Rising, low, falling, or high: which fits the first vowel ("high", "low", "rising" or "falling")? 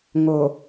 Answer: low